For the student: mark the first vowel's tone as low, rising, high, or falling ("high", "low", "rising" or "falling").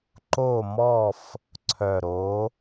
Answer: falling